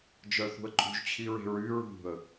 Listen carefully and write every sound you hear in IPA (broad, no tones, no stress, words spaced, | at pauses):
d͡ʒœθṳə̯ǃʼṳʒ t͡ɕʰiɹe̤ɹy ɹṳə̯